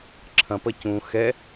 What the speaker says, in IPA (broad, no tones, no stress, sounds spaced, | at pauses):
ǁʰ ɐ̃ p ɐ c ũ x ɛ